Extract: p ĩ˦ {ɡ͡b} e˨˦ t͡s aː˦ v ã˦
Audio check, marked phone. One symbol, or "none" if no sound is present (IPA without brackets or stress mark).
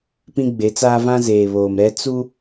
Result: ɡ͡b